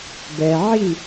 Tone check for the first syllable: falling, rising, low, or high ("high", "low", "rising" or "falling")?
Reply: low